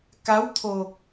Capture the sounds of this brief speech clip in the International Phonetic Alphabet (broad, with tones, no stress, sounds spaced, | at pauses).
k a˨˦ w t̪ʰ o˨˩ k̚